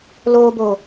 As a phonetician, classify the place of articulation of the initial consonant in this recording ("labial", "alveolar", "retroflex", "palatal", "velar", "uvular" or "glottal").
alveolar